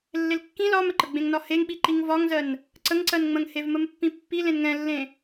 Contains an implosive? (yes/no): yes